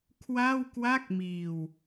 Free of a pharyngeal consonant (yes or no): yes